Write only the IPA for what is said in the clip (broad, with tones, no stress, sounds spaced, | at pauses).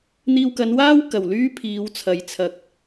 n̪ iː˧ w k ɐ˨˧ n w aː˥ w k ɐ˨˩ w l yː˥ pʰ iː˨˧ w t͡sʰ ɐ˨ j t͡sʰ ɐ˨ k̚